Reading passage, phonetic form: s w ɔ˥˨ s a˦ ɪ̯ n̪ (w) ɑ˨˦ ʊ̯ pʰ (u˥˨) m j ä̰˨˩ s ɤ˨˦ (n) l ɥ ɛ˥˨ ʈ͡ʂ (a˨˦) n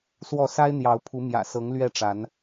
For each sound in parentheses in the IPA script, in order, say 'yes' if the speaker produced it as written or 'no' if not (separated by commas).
no, no, no, yes